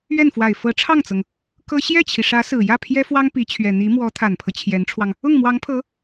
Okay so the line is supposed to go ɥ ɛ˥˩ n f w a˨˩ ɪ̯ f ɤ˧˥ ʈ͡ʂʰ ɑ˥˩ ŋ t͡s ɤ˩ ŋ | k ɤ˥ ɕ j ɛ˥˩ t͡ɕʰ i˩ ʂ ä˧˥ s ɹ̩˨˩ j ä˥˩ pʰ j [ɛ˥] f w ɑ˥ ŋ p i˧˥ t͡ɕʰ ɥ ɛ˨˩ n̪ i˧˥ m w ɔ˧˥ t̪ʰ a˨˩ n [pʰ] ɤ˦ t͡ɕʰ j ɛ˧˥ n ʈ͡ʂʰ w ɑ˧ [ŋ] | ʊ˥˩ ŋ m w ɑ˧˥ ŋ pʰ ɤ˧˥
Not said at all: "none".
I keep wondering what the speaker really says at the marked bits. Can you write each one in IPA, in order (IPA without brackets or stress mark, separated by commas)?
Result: ɛ˥, pʰ, ŋ